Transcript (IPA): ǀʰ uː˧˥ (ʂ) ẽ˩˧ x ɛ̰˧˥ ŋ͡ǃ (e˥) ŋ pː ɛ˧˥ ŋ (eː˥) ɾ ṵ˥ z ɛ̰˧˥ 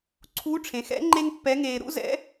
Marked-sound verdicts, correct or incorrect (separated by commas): incorrect, correct, incorrect